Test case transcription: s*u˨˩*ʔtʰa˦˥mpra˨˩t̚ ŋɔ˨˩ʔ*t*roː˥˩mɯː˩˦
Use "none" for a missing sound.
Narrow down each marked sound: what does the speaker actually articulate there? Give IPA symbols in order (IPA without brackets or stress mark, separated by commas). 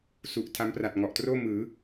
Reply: u˨˩, t